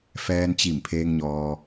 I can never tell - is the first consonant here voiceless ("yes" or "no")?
yes